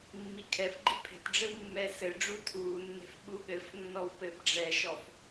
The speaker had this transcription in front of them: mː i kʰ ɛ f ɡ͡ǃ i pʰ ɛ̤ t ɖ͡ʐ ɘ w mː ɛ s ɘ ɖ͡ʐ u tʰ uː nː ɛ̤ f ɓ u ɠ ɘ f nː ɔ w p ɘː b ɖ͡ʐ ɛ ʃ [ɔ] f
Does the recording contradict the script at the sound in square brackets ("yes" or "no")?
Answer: no